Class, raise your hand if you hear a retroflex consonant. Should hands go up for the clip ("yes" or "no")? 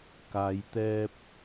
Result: no